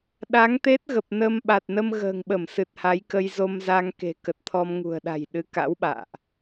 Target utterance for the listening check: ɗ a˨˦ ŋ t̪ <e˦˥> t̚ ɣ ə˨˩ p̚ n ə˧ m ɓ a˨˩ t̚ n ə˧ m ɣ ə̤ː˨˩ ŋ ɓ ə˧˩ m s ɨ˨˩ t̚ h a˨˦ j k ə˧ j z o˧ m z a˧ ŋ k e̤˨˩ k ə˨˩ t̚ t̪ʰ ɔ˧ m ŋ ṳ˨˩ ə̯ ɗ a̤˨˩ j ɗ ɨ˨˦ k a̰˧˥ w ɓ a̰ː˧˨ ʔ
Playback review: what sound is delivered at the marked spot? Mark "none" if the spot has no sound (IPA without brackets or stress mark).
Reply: e˦˥